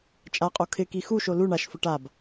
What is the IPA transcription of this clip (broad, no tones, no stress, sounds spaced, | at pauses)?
t͡ʃʼ a qʼ o kʰ ɪ k i x u ʃ o l u ɳ a ʃ f ʊ ʈ a b